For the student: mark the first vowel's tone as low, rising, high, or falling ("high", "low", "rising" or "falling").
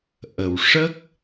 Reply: low